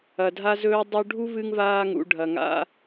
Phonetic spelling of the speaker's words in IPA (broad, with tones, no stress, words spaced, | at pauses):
ɐ˩dʱa˧zɵː˧ dˤɵ˧ɖʱu˥ vɨ˧ŋvaː˧ŋṵ˩ ɖʱɐ˩ŋa̰˧